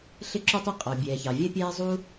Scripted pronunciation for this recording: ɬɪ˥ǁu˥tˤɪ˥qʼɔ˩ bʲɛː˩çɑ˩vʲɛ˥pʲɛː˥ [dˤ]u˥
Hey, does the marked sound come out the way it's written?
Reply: no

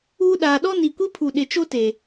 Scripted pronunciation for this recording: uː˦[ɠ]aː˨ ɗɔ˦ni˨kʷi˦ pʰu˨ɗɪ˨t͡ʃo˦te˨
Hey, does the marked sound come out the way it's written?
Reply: no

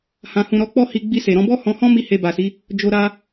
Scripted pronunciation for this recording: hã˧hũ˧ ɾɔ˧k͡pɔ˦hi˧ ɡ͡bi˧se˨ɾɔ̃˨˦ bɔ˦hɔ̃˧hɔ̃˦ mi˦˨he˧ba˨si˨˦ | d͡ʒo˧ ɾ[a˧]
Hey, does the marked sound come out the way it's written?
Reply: no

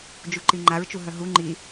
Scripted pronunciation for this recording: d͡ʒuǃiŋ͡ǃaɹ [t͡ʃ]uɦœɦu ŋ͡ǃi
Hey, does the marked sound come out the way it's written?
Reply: yes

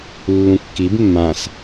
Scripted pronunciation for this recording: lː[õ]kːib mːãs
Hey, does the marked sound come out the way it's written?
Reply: no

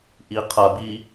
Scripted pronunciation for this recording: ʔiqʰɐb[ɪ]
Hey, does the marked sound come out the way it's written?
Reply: no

